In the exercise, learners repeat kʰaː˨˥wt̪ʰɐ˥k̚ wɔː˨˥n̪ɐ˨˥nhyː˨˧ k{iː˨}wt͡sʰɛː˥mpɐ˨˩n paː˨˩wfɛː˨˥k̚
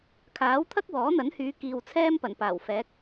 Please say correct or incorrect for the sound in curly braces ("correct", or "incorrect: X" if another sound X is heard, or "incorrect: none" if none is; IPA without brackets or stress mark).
correct